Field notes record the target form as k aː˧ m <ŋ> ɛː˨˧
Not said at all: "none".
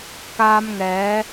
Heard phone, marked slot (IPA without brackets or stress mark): ŋ